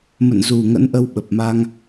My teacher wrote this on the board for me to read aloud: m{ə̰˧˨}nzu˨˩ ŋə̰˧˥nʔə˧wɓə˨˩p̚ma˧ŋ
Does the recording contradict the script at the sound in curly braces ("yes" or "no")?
no